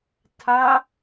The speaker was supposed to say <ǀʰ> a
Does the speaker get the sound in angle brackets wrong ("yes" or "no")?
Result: yes